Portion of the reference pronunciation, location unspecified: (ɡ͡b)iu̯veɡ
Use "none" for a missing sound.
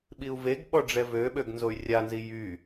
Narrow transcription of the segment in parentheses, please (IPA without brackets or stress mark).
ɓ